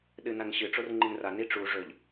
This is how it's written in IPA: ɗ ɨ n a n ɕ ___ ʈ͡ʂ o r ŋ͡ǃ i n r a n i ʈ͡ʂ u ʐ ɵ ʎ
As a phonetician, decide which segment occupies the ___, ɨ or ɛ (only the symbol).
ɨ